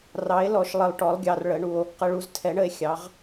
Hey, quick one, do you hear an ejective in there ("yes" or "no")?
no